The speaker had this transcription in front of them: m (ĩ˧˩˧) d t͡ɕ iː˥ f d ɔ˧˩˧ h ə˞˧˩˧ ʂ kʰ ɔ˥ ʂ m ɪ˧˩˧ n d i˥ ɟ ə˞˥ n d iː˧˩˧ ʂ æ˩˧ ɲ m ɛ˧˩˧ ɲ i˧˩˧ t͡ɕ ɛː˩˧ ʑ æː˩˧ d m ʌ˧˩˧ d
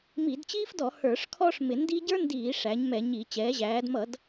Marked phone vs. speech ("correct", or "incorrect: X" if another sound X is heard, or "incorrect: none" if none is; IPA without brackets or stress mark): incorrect: i˧˩˧